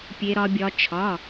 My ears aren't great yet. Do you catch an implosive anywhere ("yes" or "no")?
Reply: no